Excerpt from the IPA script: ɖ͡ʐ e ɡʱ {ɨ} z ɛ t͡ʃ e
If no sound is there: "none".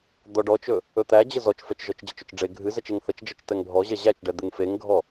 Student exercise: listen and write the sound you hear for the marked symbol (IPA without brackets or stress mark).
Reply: ɨ